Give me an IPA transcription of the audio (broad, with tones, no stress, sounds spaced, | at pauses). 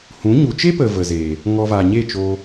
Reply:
h ũ˨˦ ɲ u˨ t͡ʃ e˦ p ə˨ v ə˨ z eː˨ | ŋ ɔ˧ v a˨ ɲ e˦˨ t͡ʃ oː˧